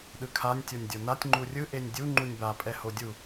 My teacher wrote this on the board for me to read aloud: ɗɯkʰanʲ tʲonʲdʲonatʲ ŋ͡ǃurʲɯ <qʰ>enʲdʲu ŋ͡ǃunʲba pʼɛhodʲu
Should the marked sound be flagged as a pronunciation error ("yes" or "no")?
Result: yes